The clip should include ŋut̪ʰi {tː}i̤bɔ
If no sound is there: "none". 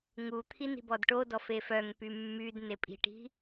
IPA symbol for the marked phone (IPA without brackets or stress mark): n